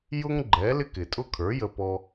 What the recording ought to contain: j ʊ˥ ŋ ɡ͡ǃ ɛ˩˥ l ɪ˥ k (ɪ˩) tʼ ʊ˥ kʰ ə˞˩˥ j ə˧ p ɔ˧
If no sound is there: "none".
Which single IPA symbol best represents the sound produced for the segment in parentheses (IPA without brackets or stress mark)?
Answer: ɪ˩